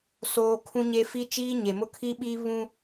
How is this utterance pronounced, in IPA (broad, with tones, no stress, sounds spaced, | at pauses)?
s oː˦ kʰ ũ˦ ɲ e˦ f i˦ t͡ʃ iː˦ ɲ e˨ m ʊ˦ kʰ i˦ ɓ i˦ β ũ˦